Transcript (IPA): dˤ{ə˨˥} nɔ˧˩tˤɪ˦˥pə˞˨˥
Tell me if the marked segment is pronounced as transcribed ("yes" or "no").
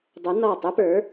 yes